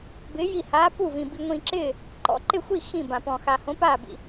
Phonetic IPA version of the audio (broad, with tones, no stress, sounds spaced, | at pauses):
b ɪː˧˥ j i˥˨ h aː˧˥ p u˥˨ v ĩ˧ b i˧ ŋʷ ĩː˧ ǁ ɪː˥˨ | ǃ ɔ̰˧˥ ǃ ɪ˥˨ xʷ i˥˨ x ĩ˥˨ b ã˧ p ɔ̃˧ x a˧ h õ˧˥ p aː˥˨ b ḭ˧